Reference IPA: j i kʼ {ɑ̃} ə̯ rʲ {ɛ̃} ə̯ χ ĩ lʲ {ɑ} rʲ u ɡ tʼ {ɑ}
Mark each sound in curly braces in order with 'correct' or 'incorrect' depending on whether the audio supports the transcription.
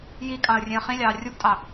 correct, incorrect: ẽ, incorrect: ɑː, correct

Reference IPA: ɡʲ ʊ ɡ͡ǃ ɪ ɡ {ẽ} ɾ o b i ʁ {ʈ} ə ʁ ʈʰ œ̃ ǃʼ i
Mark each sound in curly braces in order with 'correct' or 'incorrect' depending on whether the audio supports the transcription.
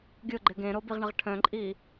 correct, incorrect: ɳ

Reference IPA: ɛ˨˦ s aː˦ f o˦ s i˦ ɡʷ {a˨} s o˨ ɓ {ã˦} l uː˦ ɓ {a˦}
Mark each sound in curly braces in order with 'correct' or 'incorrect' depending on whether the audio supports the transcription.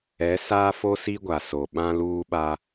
correct, correct, correct

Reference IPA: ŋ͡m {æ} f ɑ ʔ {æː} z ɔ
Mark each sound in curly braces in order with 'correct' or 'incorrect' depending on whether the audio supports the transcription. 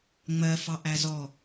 incorrect: ɜ, incorrect: æ

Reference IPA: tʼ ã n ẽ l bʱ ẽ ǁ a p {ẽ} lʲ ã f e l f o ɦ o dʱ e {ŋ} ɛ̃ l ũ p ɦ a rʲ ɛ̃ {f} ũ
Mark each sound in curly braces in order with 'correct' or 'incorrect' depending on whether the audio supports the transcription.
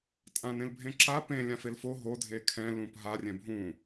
correct, incorrect: kʰ, incorrect: bʱ

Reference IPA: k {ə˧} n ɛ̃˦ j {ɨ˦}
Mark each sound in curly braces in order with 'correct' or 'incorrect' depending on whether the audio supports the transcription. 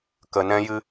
correct, correct

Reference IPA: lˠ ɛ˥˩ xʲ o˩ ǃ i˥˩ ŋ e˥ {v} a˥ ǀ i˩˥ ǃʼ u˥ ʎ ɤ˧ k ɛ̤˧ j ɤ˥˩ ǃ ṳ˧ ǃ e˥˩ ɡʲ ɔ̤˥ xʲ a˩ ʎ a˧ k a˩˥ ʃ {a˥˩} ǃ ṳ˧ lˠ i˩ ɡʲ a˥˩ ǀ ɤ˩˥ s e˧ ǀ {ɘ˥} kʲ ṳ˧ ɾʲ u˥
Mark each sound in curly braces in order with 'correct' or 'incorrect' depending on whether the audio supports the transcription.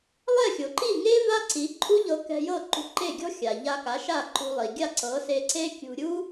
correct, correct, incorrect: e˥

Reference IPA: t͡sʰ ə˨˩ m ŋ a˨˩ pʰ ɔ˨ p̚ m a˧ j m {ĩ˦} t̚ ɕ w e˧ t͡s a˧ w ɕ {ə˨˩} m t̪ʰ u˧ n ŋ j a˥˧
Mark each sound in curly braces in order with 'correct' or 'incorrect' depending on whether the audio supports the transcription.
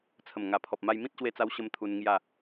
correct, incorrect: ə˦

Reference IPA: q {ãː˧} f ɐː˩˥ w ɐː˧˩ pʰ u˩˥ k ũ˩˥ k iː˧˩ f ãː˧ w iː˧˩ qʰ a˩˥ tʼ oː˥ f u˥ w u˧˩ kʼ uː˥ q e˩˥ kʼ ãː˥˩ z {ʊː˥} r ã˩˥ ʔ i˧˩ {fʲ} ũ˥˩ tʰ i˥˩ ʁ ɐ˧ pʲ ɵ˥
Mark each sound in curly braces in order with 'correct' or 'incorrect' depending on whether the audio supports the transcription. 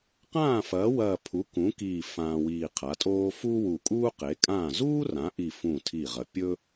incorrect: ãː˥˩, incorrect: uː˥, incorrect: f

